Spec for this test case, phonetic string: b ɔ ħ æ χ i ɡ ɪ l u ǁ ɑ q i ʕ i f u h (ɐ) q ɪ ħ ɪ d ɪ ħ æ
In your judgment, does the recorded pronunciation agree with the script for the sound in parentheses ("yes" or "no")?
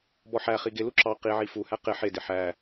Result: no